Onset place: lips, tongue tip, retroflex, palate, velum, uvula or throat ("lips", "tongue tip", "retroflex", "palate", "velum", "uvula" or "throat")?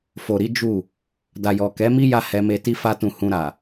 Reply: lips